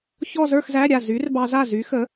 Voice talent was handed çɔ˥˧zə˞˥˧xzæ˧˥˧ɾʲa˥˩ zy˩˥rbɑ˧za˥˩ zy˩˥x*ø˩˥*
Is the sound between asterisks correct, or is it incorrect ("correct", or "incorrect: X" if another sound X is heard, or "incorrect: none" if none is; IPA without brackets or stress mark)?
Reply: incorrect: ə˩˥